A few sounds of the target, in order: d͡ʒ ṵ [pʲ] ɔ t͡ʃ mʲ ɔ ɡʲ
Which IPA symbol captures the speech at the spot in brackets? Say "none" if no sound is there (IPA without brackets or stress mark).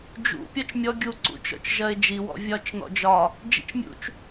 pʲ